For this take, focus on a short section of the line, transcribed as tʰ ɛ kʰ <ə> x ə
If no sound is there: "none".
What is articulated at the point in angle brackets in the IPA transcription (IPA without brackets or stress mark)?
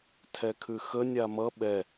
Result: ʉ